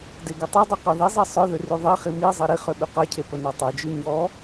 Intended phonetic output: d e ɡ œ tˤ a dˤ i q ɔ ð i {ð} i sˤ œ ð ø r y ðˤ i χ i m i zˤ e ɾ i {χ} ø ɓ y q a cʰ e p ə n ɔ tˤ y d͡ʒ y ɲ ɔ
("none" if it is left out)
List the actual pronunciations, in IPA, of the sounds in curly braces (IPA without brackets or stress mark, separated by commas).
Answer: zˤ, χ